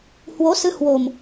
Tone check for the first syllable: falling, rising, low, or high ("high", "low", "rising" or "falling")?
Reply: rising